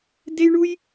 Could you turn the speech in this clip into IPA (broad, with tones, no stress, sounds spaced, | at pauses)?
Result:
d e˥ j ɳ u˥ j